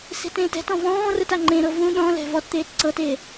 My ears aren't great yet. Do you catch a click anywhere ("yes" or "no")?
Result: yes